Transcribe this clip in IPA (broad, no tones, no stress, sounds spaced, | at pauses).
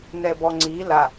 n ɛ b ɔ ŋ͡ǀ i l a